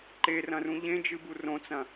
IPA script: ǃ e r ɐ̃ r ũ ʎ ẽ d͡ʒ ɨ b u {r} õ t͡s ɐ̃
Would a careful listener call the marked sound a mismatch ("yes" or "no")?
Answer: no